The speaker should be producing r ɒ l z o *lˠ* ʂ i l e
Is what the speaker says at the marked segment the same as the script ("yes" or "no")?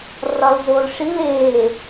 no